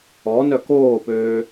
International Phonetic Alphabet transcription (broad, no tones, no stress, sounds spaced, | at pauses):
ɔ n œ k oː p øː